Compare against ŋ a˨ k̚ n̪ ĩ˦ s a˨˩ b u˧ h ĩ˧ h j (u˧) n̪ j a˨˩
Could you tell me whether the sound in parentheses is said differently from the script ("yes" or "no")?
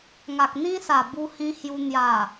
no